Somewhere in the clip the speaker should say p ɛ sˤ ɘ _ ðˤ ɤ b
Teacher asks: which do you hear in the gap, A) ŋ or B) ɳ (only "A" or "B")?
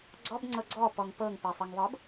A